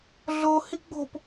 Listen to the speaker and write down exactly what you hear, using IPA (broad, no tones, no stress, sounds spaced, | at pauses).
ɮ o h i ɡ͡b o̤ p